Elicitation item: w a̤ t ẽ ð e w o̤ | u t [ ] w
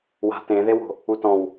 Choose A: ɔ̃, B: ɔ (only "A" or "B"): A